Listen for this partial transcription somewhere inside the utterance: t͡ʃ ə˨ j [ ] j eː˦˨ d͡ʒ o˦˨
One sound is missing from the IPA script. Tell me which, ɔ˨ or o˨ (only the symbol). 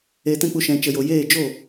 o˨